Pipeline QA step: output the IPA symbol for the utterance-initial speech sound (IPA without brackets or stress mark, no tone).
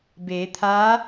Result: b